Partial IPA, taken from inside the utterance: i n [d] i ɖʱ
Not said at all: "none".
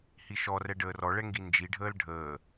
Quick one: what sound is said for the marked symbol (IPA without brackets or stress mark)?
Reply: d͡ʒ